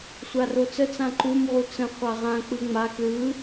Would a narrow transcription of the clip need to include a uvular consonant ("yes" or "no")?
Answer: yes